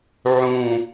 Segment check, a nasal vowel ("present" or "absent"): present